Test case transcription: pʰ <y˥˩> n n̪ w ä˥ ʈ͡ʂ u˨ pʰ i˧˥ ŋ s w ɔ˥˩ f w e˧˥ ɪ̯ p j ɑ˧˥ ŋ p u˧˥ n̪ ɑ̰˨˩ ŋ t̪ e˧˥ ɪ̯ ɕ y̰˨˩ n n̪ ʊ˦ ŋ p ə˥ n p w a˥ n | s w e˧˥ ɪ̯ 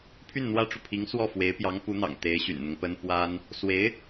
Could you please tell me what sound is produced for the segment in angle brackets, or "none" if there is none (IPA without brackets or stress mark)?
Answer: y˥˩